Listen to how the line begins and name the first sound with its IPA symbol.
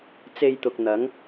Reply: t͡s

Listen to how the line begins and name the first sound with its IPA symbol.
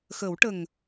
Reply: x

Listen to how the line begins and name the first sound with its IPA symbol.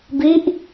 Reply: b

